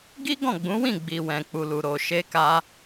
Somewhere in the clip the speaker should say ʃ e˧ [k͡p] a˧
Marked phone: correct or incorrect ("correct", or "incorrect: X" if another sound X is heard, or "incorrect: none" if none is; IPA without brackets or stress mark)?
incorrect: k